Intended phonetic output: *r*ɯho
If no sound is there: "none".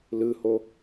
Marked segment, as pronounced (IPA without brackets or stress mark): l